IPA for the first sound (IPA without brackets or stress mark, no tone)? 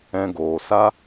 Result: ɛ̃